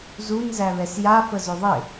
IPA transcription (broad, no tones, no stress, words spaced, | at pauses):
zunzæβɛs jafə zɵðˤɪ